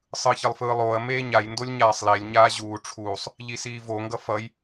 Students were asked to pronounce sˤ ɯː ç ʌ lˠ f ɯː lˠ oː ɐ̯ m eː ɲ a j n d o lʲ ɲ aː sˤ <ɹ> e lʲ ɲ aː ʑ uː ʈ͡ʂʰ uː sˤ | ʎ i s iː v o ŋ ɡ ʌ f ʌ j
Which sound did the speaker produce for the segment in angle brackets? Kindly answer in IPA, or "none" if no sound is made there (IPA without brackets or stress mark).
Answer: l